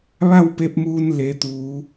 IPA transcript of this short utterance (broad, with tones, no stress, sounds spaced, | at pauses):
ʋ a˥˨ w p e˧ p̚ m uː˧ n l e˩˧ t̪ uː˩˧